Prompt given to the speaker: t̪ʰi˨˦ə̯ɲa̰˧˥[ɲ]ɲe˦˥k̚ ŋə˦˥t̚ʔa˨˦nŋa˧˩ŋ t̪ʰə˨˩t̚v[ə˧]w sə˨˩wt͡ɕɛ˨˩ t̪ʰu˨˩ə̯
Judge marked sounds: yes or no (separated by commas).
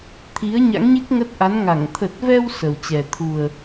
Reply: no, no